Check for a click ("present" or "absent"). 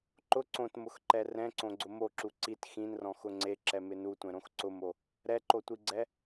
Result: present